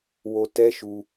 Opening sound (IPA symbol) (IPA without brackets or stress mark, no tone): w